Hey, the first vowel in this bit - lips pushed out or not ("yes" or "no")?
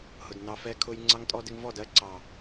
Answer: yes